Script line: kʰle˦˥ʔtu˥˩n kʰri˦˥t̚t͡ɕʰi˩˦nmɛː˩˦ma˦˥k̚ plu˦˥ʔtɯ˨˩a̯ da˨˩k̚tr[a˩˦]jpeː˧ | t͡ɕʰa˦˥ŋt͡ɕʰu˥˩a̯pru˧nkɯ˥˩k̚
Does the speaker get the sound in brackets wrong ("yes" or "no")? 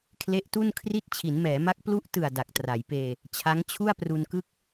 no